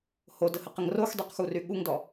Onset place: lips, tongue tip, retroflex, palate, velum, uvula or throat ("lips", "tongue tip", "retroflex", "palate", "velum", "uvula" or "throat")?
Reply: throat